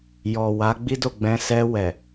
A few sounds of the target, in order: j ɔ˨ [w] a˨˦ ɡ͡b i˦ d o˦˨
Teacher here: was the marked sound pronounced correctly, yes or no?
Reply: yes